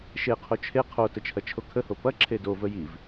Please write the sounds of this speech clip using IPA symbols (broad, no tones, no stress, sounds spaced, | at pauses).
ʃ e qʰ o t͡ʃʰ e qʰ o t ə t͡ʃʰ ɐ t͡ʃʰ o kʰ ə h o p ɐ ǁʰ e d o v ə j i v